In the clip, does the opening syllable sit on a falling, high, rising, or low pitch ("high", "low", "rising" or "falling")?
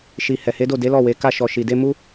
low